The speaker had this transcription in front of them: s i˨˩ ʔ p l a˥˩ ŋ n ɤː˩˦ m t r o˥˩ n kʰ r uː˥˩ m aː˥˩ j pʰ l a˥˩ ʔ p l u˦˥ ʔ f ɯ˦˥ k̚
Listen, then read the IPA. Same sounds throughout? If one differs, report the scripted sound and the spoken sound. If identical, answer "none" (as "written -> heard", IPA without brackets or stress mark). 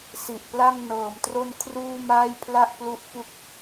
ɯ˦˥ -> u˦˥